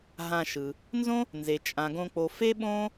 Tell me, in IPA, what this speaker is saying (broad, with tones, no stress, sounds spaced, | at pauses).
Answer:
ɦ ã˨ ʃ ɯ˩ | n z õ˦ | n z e˩ t͡ʃʼ ã˩ ɡ õ˨ k͡p o˩ f e˦ ɓ õ˥